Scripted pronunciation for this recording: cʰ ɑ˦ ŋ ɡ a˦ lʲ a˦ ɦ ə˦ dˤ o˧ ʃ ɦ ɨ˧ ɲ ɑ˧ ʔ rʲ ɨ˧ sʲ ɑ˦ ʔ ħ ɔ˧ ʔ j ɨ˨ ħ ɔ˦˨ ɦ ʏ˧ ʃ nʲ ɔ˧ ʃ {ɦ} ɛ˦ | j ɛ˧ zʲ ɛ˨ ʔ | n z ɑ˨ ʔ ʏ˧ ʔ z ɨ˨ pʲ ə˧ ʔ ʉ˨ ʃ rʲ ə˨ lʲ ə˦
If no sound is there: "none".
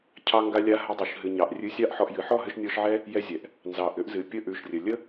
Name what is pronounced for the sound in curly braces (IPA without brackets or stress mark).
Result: ʕ